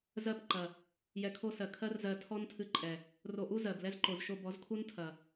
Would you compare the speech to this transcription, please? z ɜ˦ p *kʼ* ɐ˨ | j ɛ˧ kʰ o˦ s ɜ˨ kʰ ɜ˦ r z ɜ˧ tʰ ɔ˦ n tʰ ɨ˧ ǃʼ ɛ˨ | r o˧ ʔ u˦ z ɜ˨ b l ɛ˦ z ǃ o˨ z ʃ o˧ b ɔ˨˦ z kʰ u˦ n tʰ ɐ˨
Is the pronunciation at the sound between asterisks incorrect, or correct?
incorrect